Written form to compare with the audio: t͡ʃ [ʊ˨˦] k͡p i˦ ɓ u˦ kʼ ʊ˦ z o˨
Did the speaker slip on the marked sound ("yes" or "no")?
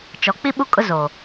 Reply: yes